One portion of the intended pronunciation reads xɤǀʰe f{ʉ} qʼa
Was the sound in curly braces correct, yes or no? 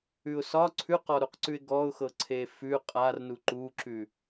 yes